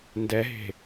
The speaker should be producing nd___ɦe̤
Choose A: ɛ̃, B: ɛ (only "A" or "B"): B